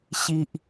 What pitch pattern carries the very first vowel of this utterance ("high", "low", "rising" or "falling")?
low